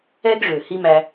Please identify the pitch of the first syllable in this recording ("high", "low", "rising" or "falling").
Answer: high